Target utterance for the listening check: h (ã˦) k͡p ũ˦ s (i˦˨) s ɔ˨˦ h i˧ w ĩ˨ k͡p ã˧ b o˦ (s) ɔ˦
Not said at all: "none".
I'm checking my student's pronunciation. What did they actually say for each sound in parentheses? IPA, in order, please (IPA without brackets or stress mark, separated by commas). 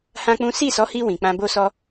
ã˦, i˦˨, s